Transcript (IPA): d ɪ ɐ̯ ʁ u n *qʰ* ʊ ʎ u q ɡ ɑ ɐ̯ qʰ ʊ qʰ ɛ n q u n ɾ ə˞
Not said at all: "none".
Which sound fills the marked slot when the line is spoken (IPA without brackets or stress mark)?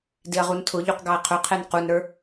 tʰ